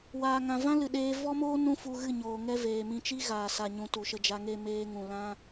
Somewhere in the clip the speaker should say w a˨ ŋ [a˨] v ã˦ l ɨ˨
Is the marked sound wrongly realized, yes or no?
yes